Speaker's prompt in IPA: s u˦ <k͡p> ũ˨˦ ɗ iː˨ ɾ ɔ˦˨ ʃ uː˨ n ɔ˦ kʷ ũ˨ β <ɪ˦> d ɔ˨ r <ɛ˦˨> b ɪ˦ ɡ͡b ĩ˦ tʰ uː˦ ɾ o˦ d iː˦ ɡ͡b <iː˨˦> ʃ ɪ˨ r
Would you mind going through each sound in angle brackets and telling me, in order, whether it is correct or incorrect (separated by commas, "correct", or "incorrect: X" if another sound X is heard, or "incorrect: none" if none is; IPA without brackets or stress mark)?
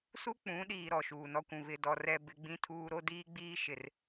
correct, incorrect: ɪ˨, correct, incorrect: iː˦